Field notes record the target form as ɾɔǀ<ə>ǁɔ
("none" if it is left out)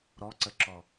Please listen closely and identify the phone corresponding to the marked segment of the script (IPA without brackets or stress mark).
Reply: ə